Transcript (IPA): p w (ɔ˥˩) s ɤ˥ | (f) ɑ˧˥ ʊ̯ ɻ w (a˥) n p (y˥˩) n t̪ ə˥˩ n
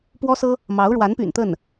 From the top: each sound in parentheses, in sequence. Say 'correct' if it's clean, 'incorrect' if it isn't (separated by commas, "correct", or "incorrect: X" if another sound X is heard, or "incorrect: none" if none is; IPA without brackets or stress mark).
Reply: incorrect: ɔ˥, incorrect: m, incorrect: a˧˥, incorrect: y̰˨˩